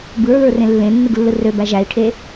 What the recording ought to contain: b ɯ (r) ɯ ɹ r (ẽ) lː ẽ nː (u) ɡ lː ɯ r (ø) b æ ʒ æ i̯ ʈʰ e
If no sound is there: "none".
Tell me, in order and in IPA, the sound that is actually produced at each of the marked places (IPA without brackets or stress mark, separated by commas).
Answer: ɹ, ẽ, ɯ, ø